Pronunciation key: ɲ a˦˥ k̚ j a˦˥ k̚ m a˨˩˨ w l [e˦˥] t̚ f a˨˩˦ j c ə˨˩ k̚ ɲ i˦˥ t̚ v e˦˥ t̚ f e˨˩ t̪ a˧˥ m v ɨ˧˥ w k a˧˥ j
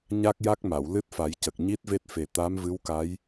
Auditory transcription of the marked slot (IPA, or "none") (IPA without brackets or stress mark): ɨ˦˥